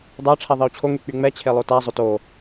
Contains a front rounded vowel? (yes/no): yes